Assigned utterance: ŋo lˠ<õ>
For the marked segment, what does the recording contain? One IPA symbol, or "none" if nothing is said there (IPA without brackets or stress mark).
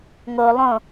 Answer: õ